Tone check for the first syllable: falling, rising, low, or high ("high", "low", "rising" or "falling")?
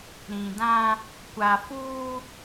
low